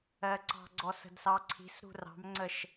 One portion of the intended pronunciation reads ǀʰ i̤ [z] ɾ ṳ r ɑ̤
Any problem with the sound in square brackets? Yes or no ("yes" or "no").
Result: yes